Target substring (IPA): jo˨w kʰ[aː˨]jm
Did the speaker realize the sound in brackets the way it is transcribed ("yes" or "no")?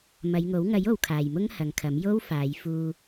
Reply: yes